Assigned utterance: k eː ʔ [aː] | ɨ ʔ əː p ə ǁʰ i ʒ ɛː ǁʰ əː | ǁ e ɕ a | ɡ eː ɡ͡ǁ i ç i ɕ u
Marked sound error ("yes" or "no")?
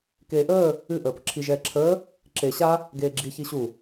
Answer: yes